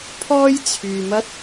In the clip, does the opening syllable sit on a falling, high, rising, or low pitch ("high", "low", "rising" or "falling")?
high